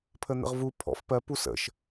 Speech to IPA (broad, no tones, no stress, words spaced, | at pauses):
pʰən̪ə̰ʁvu pʰɔ̰f pɜ pusə̰ʃ